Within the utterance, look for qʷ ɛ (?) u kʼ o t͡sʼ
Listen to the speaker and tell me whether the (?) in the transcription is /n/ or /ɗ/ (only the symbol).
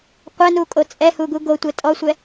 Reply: n